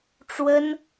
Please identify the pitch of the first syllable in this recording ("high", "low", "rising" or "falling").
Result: high